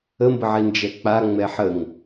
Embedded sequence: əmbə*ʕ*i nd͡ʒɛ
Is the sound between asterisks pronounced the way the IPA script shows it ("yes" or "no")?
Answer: yes